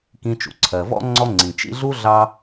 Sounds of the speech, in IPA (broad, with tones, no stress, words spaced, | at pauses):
kĩ˨t͡ʃṵ˩ǀʰɜ˩ vɔ̰˦ ŋ͡ǀɔ˦ŋ͡ǀĩ˩ t͡ʃḭ˦ɮu˥ ɮɑ˦